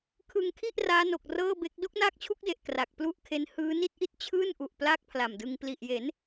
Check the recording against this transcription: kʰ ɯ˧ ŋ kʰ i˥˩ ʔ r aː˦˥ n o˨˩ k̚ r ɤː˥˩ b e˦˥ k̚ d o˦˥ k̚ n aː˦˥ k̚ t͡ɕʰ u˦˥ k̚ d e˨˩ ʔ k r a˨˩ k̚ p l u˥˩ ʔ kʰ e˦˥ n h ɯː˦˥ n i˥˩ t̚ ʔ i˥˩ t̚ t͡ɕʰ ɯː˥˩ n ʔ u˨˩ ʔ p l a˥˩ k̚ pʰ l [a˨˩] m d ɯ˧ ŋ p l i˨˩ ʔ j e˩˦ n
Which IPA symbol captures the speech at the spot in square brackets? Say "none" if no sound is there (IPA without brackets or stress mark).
a˨˩